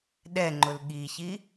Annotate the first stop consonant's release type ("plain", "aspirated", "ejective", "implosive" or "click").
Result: implosive